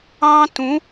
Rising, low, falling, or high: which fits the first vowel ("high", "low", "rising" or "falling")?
high